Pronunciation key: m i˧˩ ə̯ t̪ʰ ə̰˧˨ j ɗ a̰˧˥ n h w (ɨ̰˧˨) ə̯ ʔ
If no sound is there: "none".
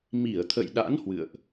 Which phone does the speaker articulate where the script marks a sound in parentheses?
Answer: ɨ̰˧˨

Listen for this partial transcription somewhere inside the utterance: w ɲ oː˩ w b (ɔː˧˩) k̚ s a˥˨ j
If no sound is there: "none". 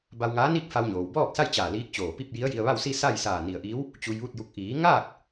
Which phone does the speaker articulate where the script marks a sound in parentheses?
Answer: ɔː˥˨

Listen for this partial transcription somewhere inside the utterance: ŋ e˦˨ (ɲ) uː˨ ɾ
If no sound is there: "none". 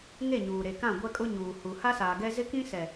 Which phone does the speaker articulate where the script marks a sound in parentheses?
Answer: ɲ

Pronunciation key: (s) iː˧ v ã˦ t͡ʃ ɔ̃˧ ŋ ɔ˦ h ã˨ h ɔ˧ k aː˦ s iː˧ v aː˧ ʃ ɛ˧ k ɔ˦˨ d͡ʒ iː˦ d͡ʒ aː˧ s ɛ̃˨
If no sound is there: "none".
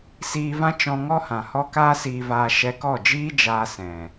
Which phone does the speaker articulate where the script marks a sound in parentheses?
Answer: s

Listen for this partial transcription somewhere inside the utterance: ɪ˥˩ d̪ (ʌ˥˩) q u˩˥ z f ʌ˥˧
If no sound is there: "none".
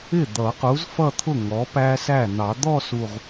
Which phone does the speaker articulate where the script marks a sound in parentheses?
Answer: ʌ˨˩˦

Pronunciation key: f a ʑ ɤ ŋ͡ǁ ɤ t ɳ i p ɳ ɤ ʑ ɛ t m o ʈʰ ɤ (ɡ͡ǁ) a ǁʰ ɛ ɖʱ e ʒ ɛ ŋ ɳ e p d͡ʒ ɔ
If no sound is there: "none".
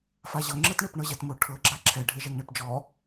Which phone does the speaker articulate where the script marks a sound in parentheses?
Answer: ɡ͡ǁ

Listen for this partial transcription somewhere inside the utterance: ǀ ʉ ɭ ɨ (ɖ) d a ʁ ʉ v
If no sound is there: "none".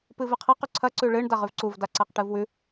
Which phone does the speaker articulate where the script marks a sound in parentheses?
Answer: ɳ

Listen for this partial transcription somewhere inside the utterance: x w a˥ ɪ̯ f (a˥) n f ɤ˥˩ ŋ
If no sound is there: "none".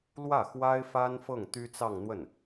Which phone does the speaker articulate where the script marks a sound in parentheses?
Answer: a˥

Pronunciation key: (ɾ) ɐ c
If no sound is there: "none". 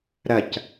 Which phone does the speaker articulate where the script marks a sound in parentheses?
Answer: ɾ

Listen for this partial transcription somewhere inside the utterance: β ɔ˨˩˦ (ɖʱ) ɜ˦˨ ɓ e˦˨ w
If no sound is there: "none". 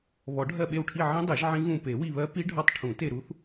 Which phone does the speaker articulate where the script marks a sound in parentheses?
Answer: ɖʱ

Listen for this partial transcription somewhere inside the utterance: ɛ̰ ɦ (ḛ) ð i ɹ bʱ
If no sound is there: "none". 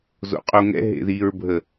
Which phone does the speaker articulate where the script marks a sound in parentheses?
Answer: ḛ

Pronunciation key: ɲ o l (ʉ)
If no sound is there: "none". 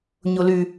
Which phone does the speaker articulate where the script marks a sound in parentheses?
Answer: ʉ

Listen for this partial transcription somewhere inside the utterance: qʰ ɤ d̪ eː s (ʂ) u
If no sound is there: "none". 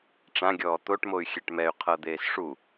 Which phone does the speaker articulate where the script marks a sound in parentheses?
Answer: ʂ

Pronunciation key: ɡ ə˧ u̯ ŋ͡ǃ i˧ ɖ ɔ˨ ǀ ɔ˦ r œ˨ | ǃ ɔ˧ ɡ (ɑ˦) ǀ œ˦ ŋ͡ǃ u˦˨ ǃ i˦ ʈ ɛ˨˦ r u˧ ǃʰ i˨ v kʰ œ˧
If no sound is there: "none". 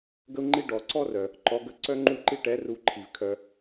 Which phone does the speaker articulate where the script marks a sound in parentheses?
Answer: ə˦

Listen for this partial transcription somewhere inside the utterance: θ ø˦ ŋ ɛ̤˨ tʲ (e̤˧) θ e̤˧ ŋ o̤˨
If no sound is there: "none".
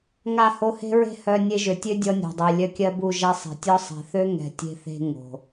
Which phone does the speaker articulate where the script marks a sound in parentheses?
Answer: e̤˧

